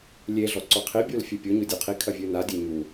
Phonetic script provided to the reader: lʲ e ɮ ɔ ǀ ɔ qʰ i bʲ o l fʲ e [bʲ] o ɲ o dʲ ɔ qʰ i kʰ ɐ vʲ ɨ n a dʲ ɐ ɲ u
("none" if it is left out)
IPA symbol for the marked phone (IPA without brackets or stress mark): pʲ